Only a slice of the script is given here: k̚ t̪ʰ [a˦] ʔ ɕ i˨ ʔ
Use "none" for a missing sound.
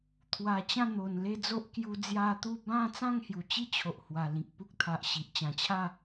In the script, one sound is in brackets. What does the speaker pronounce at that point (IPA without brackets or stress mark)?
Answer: a˨